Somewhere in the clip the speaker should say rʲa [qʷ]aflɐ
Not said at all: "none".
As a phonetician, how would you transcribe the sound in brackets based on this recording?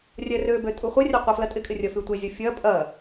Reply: qʷ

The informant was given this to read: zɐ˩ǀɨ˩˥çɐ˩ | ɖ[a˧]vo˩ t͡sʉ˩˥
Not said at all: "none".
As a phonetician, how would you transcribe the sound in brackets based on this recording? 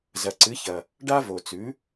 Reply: a˥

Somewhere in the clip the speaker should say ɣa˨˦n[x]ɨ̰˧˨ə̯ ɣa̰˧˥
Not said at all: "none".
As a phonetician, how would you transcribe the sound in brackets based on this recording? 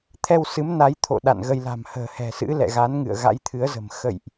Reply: ŋ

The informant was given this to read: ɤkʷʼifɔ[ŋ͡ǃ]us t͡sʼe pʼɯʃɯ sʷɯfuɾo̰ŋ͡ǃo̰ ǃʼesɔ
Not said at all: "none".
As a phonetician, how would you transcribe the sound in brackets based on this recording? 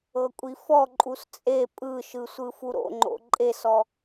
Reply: ǃʼ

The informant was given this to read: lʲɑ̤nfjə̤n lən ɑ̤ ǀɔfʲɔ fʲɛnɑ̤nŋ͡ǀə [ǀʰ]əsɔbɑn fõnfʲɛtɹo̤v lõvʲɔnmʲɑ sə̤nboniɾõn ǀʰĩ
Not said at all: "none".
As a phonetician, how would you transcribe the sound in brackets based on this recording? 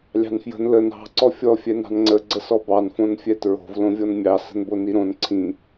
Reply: ɡ͡ǀ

